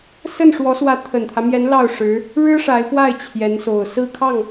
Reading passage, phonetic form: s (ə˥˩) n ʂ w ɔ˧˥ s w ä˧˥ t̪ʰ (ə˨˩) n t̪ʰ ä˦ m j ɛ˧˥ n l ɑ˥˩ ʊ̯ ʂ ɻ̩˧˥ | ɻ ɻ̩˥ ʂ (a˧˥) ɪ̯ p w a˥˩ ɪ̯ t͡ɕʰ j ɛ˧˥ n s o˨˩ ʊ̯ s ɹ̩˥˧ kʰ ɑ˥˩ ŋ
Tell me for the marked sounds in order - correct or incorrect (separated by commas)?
correct, correct, correct